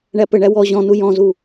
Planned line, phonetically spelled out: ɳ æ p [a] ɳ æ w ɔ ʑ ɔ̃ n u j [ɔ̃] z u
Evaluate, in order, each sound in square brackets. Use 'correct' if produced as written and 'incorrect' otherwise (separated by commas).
incorrect, correct